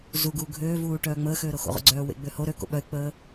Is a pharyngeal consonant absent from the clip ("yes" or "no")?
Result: yes